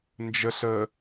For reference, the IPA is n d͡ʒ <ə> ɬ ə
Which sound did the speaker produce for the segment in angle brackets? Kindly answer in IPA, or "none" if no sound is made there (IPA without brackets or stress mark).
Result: ə